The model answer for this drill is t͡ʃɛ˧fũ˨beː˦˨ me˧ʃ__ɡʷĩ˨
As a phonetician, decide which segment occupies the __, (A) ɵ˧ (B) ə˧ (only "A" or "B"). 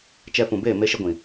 B